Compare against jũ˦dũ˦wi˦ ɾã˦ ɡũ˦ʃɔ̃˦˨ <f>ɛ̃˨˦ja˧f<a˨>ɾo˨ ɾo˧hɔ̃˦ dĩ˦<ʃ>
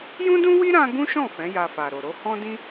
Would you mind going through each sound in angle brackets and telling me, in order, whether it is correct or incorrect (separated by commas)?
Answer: correct, correct, incorrect